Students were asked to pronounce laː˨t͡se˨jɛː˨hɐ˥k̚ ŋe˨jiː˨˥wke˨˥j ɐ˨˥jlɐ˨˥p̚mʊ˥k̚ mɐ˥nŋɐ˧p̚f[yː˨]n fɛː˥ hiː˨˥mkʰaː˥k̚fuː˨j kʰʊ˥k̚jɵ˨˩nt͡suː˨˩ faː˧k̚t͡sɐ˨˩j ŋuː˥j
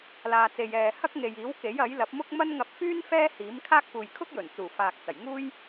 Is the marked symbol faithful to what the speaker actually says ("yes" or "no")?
no